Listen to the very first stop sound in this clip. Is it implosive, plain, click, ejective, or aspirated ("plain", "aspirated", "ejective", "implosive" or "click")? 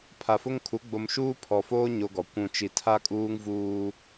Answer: aspirated